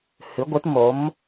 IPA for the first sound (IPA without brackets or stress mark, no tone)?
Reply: h